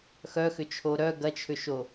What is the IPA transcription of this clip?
xœxʏt͡ʃʰo ɾœ ɡɐt͡ʃʰʏʃo

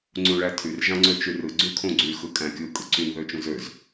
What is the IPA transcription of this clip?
ŋ͡ǀũɭætʰyr ʒɑ̃ŋ͡ǀøt͡ʃyrɯ ɡ͡ǀykʰõɡ͡ǀy xɯkʼæ̃kʲɯ kʼɯǀyn ðøt͡ʃũzøz

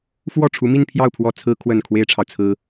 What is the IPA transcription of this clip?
fwɔ˥˩ ʈ͡ʂʰu˧˥mi˥˧npʰjɑ˥˩ʊ̯ pʰwɔ˥ t͡sʰɹ̩˥kʰwə˥˩n kʰwe˥ɪ̯ʈ͡ʂʰɑ˨ʊ̯ t͡sʰɹ̩˥

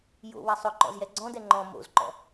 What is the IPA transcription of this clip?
jo̰ wɐsˤʊ ǃɔ̰zjɛɡ͡ǀɔ̃dɛ ŋ͡ǃɔ̃ mo̰zǃɔ̰

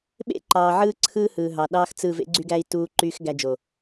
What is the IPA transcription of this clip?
ɓḛ˦ǃɑː˨ ʕɯː˦ǀʰɯ˦hɯː˨ɦɑ˨ ɗɑː˦xt͡sɯ˦˨ vḛ˦ɡ͡ǀy˦ɡæ˦i̯ tuː˦ǃyː˦x ɡæ˧d͡ʒo˨

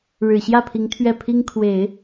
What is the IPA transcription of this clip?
ɻɻ̩˨˩ɕjä˥˩pʰi˧˥ŋ t̪ʰɥɛ˥˩pʰi˥ŋkʰwe˨˩˦ɪ̯

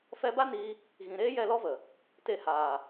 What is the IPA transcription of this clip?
fɛ˧ba˦niː˧ | ɣĩ˨ ɾeː˦jɛ˦˨lɔ˦və˨ | te˧haː˨

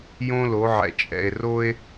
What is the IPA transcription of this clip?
jõ˦lo˨˦ʕɛ̰˨ t͡ʃʼɛ̰˨e̯ro˦e̯

